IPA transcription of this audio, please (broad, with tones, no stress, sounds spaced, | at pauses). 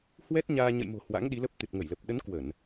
h w ɛ˦˥ t̚ ɲ aː˧ ɲ ə̰˧˨ j m o̤˨˩ h w a̰˧˥ ŋ ɗ i˨˦ l ə˦˥ p̚ t̪ ɨ˨˩ t̚ ŋ ə˧˩ j l ə˨˩ p̚ ɗ ə˨˦ n k w ə˧˩˨ n